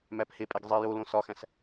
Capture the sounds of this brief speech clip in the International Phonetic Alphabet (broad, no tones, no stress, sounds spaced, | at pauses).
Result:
m æ p h e pʼ e ɡ zˤ i j o l õ s ɒ x æ̃ s